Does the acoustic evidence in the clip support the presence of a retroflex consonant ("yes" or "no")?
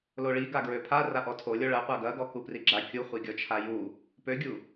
yes